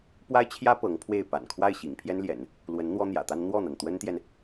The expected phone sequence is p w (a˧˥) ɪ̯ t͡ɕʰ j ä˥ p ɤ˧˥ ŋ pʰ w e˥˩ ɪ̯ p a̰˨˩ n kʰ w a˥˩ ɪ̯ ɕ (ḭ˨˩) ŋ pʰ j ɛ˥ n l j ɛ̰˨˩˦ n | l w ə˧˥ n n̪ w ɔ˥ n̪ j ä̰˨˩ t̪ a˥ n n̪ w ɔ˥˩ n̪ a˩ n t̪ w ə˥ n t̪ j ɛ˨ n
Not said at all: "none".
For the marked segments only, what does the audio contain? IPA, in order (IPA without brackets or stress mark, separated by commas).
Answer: a˥, ḭ˨˩